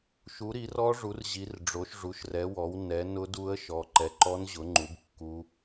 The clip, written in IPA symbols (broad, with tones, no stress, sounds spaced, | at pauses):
ʃ u˨˦ ɾ i˨˦ r ɔ˦˥ ʐ u˨˦ r ʑ i˨˦ r ɖ͡ʐ o˨˦ ʃ ʐ u˨˦ ʃ r ɛ˨˦ w ɔ˨˦ w n ɛ˨˦ n ʊ˦˥ d u˦˥ ə̯ ʃ ɔ˨˦ ǃ ɛ˨˦ ǃ ɔ˦˥ n ʑ ʊ˨˦ ŋ͡ǃ u˨˦ b kː u˦˥